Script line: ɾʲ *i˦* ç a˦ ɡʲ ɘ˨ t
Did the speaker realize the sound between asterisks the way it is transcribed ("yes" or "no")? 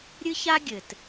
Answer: no